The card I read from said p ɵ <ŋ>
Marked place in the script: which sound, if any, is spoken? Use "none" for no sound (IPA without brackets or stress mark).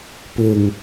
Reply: ŋ